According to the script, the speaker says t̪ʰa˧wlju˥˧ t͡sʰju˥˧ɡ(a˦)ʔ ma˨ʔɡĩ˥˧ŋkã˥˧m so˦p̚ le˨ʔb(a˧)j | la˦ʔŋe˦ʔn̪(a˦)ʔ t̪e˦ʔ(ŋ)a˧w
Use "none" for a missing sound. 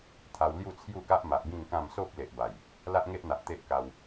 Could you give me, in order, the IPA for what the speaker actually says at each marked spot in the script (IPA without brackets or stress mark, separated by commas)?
a˦, a˨˩, a˨, k